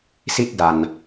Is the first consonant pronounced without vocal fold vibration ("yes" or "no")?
yes